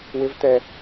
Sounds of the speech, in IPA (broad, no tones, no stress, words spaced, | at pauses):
wɪvt̪ɛ